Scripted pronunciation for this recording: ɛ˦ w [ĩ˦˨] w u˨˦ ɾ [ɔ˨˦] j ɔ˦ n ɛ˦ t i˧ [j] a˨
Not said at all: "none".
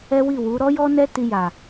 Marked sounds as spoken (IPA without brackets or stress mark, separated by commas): i˦˨, ɔ˦, j